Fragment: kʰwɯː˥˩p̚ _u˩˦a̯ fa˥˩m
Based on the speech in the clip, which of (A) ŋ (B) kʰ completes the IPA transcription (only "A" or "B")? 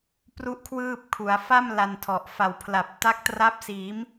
B